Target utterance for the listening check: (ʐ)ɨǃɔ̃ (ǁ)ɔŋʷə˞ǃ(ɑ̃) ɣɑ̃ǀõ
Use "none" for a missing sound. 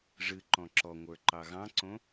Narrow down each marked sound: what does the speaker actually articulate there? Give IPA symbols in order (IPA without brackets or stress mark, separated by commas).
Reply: ʐ, ǁ, ɑ